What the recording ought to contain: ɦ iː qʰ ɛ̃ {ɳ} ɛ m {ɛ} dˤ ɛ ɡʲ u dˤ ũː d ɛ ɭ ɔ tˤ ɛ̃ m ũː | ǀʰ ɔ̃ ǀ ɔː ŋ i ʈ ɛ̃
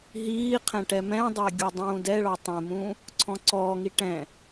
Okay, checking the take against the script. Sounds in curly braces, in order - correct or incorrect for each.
incorrect: ʈ, incorrect: ɛ̃

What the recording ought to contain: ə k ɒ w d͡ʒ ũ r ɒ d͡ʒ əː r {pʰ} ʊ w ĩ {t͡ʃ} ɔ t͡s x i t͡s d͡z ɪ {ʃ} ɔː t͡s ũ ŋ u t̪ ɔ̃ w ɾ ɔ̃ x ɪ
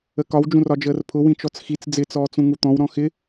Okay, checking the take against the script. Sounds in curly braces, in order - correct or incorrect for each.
correct, correct, incorrect: t͡s

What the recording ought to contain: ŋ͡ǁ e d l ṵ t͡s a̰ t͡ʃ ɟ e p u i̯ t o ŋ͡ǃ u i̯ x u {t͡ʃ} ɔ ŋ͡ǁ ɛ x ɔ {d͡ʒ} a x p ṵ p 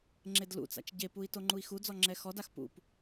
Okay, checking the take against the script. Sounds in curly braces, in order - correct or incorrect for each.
incorrect: d͡z, incorrect: d

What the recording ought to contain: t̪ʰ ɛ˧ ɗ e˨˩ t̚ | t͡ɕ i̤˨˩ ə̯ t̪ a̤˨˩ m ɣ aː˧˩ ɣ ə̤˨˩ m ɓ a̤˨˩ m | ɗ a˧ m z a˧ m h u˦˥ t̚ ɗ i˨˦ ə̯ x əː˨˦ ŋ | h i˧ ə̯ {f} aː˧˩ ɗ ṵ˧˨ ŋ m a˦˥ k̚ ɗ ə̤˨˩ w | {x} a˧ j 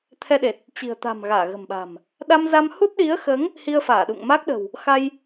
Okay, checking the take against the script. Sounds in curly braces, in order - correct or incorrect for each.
correct, correct

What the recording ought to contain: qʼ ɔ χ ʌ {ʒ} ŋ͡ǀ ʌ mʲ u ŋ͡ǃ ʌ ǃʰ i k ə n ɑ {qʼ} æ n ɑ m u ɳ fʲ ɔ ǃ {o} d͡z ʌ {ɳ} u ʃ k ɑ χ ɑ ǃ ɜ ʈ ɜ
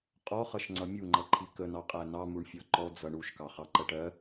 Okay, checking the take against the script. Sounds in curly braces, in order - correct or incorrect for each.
incorrect: ʃ, correct, incorrect: ɔ, correct

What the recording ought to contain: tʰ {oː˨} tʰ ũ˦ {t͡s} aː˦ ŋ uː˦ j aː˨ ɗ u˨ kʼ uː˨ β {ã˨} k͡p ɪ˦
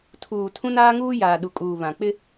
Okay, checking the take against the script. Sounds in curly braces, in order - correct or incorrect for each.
incorrect: uː˨, incorrect: n, correct

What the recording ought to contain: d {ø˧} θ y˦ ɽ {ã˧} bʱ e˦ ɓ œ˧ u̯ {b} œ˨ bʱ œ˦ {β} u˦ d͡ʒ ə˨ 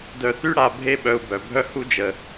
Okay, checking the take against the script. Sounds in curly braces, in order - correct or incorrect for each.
incorrect: œ˧, incorrect: a˧, correct, incorrect: h

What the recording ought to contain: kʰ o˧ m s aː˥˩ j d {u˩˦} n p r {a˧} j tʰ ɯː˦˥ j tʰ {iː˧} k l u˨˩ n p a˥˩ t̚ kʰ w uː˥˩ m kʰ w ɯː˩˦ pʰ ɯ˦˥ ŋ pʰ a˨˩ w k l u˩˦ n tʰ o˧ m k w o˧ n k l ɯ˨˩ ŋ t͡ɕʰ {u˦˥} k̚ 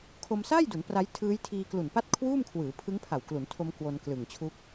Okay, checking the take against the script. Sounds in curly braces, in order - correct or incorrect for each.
correct, incorrect: a˦˥, correct, correct

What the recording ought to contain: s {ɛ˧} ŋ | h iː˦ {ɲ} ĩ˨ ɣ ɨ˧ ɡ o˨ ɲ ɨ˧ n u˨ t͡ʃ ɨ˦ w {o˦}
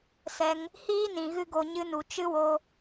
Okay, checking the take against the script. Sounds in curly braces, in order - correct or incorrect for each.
correct, incorrect: n, incorrect: o˧

